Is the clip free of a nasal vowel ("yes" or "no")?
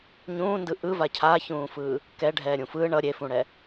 no